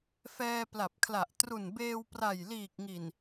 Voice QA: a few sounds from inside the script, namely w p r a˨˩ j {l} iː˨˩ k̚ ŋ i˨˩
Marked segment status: correct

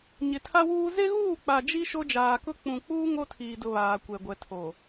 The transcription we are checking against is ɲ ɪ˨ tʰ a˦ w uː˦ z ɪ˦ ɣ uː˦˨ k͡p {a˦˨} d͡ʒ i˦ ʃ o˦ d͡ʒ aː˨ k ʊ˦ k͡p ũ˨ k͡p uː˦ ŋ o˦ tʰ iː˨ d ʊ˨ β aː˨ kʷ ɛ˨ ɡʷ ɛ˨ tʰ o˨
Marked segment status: incorrect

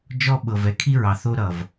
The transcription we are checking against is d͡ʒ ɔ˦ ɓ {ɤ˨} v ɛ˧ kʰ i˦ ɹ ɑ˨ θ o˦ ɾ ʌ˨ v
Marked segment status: correct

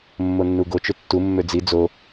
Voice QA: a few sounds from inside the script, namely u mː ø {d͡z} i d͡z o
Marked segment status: correct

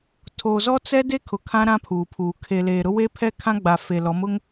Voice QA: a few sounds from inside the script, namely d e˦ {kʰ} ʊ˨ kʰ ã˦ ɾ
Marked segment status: correct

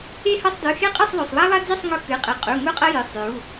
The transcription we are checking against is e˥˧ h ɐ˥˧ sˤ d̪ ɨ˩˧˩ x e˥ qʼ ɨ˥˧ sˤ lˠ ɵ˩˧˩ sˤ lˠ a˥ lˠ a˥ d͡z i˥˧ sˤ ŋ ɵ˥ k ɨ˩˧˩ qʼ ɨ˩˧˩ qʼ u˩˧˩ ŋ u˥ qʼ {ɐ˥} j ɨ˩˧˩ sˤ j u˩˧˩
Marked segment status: correct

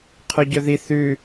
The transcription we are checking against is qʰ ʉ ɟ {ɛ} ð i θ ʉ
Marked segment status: incorrect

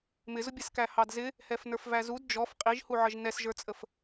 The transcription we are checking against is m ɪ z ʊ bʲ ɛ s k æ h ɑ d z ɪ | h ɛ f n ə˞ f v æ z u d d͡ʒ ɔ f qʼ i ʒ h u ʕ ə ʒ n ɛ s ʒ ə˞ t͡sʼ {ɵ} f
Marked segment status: incorrect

